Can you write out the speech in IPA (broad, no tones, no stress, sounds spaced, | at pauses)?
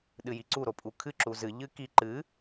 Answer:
ɗ ɨ j i ǀ u ɾ o pʼ u kʰ ɨ ǁ u z ɨ ʎ ɨ k i ǃ ɨ